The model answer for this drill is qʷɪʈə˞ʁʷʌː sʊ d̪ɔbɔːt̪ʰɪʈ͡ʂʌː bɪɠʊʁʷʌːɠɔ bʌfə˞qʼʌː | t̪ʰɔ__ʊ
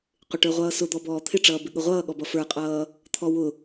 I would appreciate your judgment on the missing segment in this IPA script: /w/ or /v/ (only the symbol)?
w